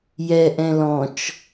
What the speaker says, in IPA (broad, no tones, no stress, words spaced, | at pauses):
jɛʔɛ̃ lɔ̃t͡ʃ